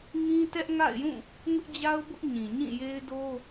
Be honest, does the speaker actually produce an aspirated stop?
no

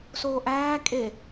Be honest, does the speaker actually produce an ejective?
yes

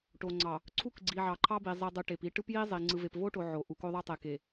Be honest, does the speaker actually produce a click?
yes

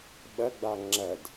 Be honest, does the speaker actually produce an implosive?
yes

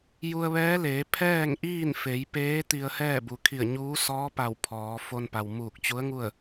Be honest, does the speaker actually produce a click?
no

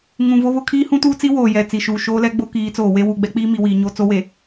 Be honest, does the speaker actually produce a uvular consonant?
no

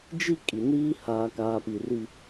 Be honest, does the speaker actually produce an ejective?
yes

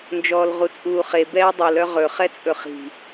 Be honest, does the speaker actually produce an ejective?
yes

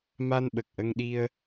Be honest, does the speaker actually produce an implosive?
yes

